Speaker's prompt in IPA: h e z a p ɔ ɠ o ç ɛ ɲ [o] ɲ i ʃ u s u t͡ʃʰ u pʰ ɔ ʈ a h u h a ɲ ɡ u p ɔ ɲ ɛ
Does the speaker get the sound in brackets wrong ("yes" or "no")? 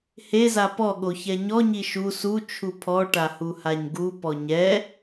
yes